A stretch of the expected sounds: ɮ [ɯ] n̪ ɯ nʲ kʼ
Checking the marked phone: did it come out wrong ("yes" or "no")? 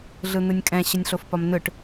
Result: no